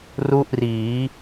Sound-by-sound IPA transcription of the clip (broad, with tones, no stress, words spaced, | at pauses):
ru˥˩ʔriː˩˦